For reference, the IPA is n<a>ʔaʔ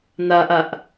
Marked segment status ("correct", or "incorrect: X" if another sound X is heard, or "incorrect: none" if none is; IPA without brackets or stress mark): correct